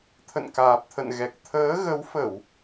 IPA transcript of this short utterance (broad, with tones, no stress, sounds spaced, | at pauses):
t̪ʰ ə̰˧˨ n k aː˨˩ p̚ t̪ʰ ə̰˧˨ n ɣ ɛ˨˩ k̚ t̪ʰ əː˨˦ ɣ ə˨˦ w f ə˧˩˨ w